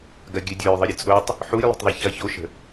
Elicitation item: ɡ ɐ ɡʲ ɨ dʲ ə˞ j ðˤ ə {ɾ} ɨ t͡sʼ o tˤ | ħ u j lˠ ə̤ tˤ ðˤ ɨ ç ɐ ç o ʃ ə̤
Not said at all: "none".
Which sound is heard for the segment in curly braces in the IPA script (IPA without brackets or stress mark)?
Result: ɾʲ